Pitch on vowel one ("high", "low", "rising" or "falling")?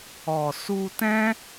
low